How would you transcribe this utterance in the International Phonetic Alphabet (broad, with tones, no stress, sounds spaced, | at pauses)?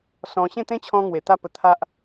s ɔ̃˧ ɕ ẽ˥˧ t̪ ẽ˦ t͡ɕʰ ɔ̃˧ ŋ w e˨˩ t̪ a˥˧ p ə˧ t̪ʰ a˦ ʔ